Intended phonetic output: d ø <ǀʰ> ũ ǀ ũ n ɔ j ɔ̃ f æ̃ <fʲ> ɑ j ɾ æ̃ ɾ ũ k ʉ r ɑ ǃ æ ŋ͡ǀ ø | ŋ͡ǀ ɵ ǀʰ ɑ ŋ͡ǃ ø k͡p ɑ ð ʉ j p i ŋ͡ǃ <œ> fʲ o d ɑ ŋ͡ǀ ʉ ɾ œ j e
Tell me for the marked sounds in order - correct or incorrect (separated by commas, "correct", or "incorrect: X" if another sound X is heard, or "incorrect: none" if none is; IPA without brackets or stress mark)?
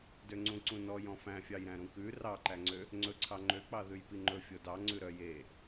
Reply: incorrect: ŋ͡ǀ, correct, incorrect: ɵ